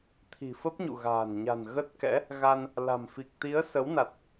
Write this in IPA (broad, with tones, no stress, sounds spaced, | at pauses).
t̪ʰ i̤˨˩ f ə˦˥ p̚ ɲ ṵ˧˨ ɣ a̤ː˨˩ n ɲ a̤˨˩ n ɣ ə˦˥ t̚ k ɛ̰˧˥ | ɣ a˧ n | l a̤˨˩ m f i˨˩ k̚ t̪ i˨˦ ə̯ s ə˨˦ w n a˨˩ t̚